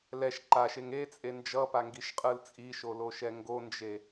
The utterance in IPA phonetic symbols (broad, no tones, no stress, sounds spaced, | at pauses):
l ɛ ʃ ǃ a ʃ e ŋ e t͡sʼ e n d͡ʒ ʌ p a ŋ ɡ i ʃ qʼ ɯ l t͡sʼ i ʃ o l o ʃ ɛ ŋ ɡ o n d͡ʒ e